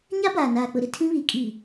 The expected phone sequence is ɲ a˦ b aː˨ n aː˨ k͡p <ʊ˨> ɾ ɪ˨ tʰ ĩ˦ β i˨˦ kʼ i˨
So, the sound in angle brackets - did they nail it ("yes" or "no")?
yes